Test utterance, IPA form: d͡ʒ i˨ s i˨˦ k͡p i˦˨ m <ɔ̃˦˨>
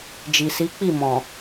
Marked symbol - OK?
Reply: no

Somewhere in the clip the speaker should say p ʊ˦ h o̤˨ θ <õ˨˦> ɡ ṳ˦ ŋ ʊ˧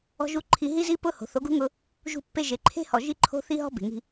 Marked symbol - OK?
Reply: no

